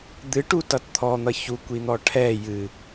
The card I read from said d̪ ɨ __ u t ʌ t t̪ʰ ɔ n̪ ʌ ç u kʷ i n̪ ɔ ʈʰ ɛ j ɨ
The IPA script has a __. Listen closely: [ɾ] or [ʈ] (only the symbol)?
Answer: ʈ